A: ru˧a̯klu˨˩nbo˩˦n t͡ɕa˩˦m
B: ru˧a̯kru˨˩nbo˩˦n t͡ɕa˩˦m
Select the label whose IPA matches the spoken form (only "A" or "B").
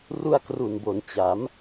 B